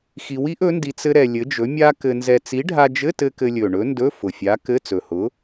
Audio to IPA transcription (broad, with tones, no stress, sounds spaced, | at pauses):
x i˧ w i˥ ʔ ɵ˨˥ n d i˧ t͡s ɘ˥ ɾ ɛ˧ lʲ ɘ˨˥ d͡ʒ ɵ˨˥ mʲ a˥ k ɘ˧ n z ɛ˧ t͡s i˨˥ ɖʱ a˧ d͡ʒ ɘ˧˥˧ t ɘ˧ k ɘ˧ lʲ ɵ˨˩ ɳ ɵ˨˥ n d ɵ˧˥˧ f ʊ˨˩ fʲ a˨˥ k ɘ˧˥˧ t͡s ɵ˨˩ h ʊ˨˥